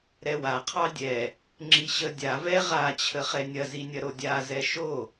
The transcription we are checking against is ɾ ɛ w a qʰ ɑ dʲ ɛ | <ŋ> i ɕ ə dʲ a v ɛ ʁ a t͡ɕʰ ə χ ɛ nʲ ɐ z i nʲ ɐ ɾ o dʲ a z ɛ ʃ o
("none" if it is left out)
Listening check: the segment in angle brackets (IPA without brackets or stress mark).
ŋ͡ǁ